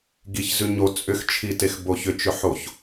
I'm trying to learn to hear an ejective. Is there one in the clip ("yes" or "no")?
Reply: yes